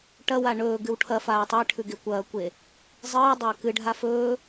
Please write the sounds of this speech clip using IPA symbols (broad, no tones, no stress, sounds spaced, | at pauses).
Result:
ʈ ɐ w a ɳ ɵː ɡ ɨ w ʈʰ ɐ f aː tˤ e ʈʰ ʉ ɡ e kʷ ɐː kʷ e | zˤ ɨː dˤ ɐː k ɨ ɖʱ a f ɵː